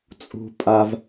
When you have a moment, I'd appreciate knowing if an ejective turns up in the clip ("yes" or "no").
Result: yes